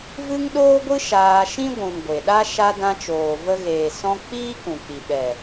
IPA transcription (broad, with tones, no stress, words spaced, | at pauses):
vɨ˦ŋɗoː˦ɡʷɨ˦ ʃaː˧ ʃĩ˦ɡʷũ˨n ɡʷe˨ɗa˦ ʃa˧dã˧t͡ʃoː˨ və˧ɣeː˨ sɔ̃˧ k͡piː˦kũ˨k͡pi˨ ɓɛ˨